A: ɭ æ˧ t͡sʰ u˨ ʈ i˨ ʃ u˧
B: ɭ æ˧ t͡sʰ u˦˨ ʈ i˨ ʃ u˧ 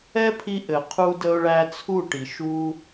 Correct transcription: B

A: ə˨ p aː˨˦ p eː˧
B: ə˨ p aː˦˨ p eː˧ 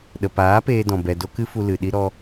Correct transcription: A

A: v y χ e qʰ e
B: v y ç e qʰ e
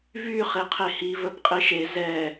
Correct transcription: A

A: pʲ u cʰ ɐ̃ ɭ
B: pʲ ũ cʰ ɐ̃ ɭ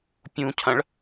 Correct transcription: B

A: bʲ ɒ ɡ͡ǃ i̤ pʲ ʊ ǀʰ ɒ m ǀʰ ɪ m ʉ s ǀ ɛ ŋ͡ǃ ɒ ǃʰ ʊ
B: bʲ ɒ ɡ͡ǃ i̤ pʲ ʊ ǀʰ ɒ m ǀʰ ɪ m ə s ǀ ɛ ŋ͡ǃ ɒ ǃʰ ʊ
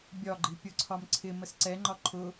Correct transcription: B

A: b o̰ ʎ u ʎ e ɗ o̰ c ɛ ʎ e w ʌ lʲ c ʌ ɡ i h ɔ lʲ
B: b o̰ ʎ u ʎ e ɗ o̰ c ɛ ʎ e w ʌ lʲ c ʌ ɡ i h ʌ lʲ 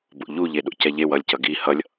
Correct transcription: B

